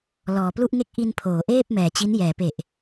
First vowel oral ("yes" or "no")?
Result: yes